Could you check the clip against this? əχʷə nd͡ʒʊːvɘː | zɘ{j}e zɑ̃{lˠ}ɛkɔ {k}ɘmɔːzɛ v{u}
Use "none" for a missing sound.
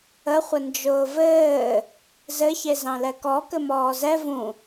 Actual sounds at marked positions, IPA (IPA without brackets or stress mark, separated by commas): ç, l, k, ũ